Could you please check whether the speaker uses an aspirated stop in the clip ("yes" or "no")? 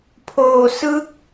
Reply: yes